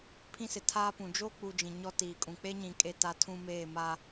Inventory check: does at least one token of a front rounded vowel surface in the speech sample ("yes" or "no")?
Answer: no